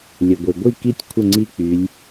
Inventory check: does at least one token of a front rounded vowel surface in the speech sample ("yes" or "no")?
yes